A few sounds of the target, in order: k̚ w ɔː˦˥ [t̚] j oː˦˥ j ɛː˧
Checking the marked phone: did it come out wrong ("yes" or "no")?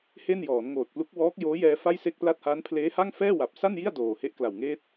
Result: yes